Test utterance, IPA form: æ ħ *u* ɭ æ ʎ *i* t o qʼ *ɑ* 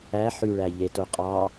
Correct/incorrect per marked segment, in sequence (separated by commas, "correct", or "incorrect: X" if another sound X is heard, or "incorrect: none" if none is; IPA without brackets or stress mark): incorrect: y, incorrect: e, correct